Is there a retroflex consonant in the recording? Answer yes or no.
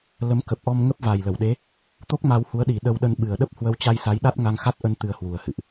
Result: no